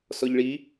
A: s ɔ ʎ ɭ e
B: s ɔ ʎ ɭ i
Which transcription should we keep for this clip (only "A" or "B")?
B